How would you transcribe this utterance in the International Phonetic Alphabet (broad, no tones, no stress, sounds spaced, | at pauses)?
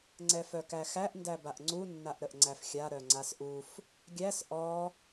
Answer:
ŋ͡ǀ ɛ f œ k æ x æ ʔ n d æ b a ʔ ŋ͡ǀ u nː a ʔ ɾ ə ʔ ŋ͡ǀ æ f xʲ a ɾ œ ŋ͡ǀ a s ʔ u f | ɡʲ æ s ʔ ɔ